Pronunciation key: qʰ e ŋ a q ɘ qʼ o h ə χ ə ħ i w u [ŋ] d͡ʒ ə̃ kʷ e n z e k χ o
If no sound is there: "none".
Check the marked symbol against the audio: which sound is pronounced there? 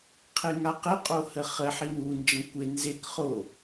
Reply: n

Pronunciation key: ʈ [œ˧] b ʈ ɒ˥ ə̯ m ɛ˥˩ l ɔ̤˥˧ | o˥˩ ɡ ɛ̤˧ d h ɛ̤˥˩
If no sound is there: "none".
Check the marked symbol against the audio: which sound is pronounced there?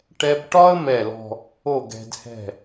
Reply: ɛ˧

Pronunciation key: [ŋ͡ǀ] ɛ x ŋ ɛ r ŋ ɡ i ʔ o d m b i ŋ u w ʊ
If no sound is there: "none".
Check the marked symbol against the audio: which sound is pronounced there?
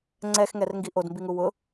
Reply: ŋ͡ǀ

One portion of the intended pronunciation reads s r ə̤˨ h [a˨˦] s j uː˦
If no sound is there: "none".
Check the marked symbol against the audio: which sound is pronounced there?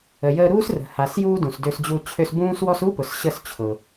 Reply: a˨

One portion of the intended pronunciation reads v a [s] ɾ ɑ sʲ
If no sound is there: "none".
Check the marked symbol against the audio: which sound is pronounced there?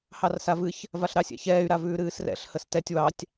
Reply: ɬ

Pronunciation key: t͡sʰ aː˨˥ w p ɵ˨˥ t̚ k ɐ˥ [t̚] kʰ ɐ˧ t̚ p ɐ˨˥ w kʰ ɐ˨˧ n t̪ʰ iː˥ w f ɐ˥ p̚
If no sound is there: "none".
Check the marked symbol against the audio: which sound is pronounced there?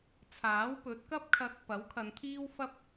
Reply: p̚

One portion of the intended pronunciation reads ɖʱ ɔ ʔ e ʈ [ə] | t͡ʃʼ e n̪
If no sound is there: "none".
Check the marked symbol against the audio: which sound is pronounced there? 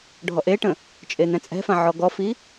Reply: ə̃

